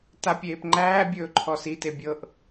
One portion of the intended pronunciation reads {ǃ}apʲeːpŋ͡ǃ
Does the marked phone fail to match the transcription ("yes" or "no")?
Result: yes